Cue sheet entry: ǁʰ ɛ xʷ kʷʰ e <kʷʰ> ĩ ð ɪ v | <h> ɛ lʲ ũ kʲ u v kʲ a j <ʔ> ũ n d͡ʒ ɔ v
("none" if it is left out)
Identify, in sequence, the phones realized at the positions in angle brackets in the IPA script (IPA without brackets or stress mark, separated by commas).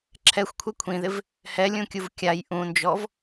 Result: kʷʰ, h, ʔ